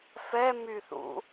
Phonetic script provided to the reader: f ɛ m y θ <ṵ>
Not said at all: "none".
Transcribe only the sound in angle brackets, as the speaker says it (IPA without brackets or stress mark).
ṵ